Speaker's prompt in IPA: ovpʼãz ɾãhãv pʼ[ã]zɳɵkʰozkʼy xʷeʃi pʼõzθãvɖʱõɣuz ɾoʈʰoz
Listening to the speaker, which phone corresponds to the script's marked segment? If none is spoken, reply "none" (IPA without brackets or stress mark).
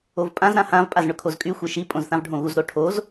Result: a